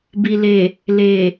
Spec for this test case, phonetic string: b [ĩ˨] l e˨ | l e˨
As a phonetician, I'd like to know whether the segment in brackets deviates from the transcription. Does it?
yes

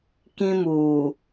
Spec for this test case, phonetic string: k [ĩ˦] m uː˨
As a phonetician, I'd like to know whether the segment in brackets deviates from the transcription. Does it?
no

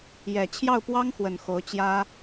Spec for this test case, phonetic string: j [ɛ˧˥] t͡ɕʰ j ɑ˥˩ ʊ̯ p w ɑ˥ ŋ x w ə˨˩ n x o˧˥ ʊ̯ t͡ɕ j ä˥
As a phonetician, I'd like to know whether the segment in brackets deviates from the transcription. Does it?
yes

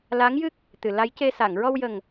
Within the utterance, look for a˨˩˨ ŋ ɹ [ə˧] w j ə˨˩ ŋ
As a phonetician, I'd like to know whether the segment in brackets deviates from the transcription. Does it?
yes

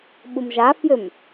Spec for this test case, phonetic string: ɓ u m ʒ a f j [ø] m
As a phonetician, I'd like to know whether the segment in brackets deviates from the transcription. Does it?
no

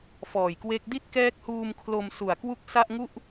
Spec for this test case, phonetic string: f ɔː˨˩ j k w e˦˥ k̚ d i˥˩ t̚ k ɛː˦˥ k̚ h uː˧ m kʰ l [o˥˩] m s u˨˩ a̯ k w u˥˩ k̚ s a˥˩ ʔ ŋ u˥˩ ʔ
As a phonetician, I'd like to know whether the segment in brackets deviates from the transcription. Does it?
yes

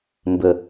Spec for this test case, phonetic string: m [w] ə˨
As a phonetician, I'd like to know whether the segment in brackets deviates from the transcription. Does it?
yes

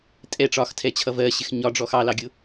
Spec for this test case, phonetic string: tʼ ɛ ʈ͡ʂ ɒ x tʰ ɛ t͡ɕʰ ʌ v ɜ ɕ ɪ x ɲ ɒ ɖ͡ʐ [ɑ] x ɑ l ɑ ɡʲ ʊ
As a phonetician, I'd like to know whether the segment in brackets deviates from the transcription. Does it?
yes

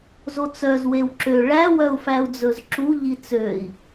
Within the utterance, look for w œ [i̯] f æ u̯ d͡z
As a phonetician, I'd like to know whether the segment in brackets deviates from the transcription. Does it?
yes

